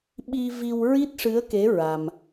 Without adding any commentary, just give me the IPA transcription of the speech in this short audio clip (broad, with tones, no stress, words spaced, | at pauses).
ɓi˧vi˧w ɹi˦˥t̚ʂɨ˧˥ə̯ke˧˥ ɹa˧m